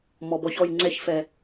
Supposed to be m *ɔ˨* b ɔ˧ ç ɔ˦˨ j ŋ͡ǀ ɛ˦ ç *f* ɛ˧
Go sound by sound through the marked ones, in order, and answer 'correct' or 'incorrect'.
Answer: correct, correct

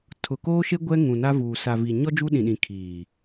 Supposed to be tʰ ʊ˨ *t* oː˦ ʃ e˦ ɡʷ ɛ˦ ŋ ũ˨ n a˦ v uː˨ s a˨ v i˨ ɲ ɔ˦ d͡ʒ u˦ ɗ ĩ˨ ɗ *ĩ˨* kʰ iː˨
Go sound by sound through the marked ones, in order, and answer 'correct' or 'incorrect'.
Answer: incorrect: k, correct

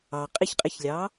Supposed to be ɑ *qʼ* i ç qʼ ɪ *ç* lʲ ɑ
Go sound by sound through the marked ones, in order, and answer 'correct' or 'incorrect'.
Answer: correct, correct

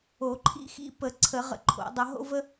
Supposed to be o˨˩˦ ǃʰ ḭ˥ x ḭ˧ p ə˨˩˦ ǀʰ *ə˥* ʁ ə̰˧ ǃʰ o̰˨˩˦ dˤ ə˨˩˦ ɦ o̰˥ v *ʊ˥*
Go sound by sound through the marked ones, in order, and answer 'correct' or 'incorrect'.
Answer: incorrect: ə˨˩˦, incorrect: ə˥

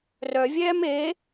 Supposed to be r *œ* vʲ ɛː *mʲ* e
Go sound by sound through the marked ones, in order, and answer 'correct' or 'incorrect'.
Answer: correct, incorrect: m

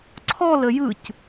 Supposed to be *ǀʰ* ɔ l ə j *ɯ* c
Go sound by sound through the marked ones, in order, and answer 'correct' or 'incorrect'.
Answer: correct, correct

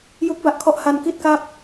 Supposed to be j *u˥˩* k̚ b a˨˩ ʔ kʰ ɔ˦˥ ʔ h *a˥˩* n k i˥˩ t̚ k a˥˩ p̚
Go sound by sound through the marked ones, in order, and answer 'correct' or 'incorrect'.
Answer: incorrect: u˦˥, incorrect: a˧

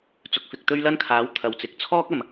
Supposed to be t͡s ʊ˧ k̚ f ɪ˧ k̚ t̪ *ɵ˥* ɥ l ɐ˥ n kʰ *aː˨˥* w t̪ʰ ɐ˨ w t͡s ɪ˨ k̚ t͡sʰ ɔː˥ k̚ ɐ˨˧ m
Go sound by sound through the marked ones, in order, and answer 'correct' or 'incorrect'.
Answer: correct, correct

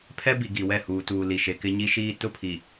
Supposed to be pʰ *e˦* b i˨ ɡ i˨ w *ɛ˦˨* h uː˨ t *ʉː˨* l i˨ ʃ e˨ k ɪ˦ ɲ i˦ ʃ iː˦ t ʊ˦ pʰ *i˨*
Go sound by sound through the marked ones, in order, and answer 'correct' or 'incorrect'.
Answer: incorrect: ɛ˦, correct, incorrect: uː˨, correct

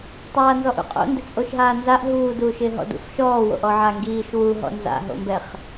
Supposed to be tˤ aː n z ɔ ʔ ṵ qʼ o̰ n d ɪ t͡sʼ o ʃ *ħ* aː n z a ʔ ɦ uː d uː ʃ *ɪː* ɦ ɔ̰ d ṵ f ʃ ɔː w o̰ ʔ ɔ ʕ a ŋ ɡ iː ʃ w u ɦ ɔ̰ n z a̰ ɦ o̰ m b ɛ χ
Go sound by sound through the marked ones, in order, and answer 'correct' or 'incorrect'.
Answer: incorrect: ɦ, correct

